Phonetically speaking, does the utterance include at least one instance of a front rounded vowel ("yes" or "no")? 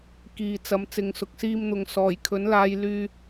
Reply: yes